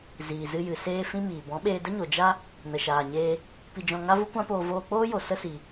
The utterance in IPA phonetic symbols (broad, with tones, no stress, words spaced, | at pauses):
ziː˨zɨ˧jɨ˨ seː˦fĩ˦miː˨ bɔ̃˨˦ɓeː˧də˦ɲo˨ d͡ʒa˦ | nə˨ʃaː˨ɲeː˧ | pi˧d͡ʒɔ̃˧ ŋa˦vu˦kʷã˦poː˧ voː˧k͡poː˦jo˨ sə˦si˨